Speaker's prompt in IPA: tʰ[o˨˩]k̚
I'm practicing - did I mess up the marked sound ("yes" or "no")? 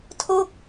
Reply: yes